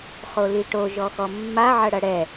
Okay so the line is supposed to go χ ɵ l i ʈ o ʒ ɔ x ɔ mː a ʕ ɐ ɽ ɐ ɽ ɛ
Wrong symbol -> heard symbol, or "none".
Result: ɵ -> o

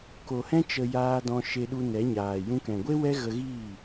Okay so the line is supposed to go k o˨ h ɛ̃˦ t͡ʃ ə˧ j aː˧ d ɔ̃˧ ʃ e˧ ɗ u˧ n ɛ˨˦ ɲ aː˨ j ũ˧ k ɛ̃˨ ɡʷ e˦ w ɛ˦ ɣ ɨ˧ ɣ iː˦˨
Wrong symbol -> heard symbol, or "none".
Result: ɨ˧ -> ə˧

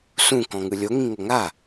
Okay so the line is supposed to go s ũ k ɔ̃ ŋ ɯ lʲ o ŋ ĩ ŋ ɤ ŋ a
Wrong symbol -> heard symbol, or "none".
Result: none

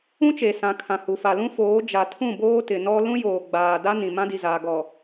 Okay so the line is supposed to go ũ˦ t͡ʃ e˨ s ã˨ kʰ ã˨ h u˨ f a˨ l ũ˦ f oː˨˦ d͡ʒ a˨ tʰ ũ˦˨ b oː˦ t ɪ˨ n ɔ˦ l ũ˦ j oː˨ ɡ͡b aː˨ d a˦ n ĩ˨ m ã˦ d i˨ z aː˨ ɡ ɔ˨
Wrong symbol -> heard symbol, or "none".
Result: none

